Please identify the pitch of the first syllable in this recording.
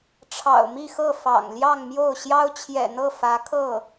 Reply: low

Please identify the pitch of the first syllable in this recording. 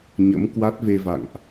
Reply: rising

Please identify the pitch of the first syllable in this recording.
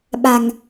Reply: low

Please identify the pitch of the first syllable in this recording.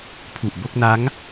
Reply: low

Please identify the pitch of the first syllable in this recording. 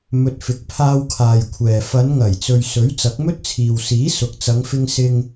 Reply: low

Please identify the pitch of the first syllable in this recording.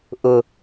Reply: low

